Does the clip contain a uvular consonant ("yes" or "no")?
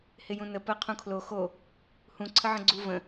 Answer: yes